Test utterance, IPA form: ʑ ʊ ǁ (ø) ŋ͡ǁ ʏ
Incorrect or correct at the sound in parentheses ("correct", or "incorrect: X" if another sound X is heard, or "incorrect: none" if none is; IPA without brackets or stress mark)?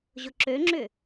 correct